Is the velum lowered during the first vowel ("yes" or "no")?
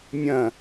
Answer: yes